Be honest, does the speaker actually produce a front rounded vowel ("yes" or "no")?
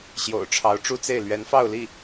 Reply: no